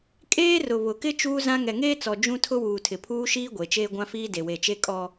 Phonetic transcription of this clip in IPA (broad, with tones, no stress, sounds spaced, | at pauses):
kʼ eː˦ r ʊ˨ β ʊ˨ k ɪ˦ t͡ʃ uː˦ z ã˦ ŋ ɛ˨ ŋ eː˦ t͡s ɔ˨ d͡ʒ ũ˦ tʰ ʊ˦ w uː˨ tʰ ɪ˨ pʰ uː˦ ʃ iː˦ ɡʷ e˨ t͡ʃ eː˦ ɡʷ ã˦ f iː˦ d e˨ w e˨ t͡ʃ e˦ kʼ ɔ˦